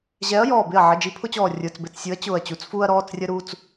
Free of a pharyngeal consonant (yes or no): no